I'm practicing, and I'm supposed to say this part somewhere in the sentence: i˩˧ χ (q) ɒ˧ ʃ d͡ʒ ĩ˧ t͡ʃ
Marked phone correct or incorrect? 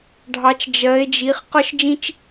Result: correct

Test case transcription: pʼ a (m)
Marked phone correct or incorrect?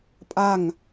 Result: incorrect: ŋ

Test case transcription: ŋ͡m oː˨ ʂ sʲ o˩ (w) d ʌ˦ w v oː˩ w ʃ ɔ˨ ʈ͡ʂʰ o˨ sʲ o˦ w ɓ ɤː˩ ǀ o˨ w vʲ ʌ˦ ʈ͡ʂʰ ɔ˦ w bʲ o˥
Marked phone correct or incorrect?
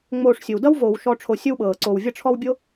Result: correct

